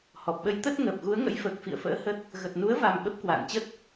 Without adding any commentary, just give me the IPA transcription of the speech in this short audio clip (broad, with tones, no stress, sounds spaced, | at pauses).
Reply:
h ɔ˨˩ p̚ ɓ ə˨˦ j t̪ ə˦˥ t̚ ŋ əː˨˩ p̚ ɣ u˨˦ ə̯ ŋ ə̰˧˥ j f əː˨˩ k̚ f ḭ˧˨ ə̯ f ə̰ː˧˥ h ə˦˥ t̚ | ɣ ə˨˩ t̚ n u˨˦ ə̯ v a˨˩ m ɓ ə˦˥ p̚ k w a̰ː˧˨ n t͡ɕ ə˦˥ t̚